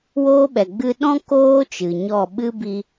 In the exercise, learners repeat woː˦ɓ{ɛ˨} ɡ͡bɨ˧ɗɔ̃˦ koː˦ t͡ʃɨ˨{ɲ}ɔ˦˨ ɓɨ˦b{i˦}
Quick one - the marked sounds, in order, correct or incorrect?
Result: correct, correct, incorrect: i˧

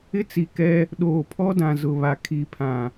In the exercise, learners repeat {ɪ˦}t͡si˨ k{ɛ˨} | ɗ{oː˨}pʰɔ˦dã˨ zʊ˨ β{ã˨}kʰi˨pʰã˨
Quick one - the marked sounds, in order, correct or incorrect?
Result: correct, incorrect: ɛ˦, correct, incorrect: a˨

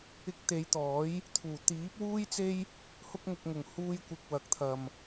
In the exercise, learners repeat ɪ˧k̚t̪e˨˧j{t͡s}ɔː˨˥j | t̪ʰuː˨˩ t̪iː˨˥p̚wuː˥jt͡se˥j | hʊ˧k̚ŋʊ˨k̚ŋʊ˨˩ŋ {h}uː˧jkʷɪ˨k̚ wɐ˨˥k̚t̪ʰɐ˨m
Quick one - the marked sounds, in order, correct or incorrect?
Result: incorrect: t̪, correct

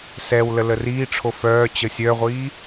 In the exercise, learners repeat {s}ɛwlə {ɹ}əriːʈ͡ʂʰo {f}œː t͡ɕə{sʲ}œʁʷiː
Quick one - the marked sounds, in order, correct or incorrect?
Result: correct, incorrect: l, correct, correct

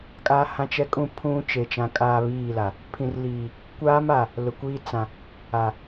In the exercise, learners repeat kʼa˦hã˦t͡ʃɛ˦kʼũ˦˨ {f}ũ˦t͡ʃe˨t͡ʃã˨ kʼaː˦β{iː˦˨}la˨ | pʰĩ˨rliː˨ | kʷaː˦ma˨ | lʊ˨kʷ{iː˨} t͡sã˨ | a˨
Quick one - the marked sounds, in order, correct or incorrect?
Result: incorrect: pʰ, correct, incorrect: iː˦

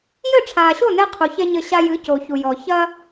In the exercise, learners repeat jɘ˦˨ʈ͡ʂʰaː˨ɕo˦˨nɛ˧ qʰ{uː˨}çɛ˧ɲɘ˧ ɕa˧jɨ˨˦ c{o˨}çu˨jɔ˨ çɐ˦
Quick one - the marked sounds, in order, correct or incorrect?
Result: incorrect: u˨, correct

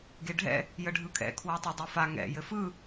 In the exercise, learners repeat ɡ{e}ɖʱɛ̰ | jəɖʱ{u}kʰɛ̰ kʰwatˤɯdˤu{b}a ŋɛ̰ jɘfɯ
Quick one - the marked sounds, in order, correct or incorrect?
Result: correct, incorrect: ɯ, incorrect: f

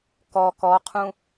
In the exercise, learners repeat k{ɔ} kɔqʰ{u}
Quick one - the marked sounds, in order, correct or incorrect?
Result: correct, incorrect: ũ

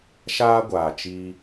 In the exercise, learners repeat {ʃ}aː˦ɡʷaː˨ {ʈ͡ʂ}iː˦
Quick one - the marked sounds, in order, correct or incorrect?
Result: correct, incorrect: t͡ʃ

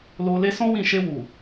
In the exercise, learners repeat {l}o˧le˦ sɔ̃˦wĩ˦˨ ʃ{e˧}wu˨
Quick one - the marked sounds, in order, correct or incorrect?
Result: correct, correct

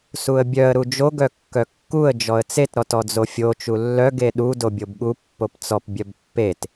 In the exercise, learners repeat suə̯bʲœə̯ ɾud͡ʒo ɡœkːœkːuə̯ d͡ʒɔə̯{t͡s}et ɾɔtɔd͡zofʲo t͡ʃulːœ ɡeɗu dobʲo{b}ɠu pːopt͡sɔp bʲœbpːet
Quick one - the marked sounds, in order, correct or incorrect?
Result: correct, correct

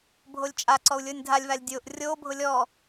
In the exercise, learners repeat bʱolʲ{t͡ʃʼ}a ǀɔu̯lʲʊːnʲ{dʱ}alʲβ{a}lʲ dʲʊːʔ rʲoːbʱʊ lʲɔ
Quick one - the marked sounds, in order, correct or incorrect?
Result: correct, correct, correct

